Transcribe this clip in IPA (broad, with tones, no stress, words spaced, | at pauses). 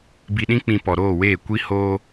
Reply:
bi˧ɗĩ˦k͡pĩ˧ pɔ˨ɾoː˦˨weː˦˨ kʷi˦hoː˦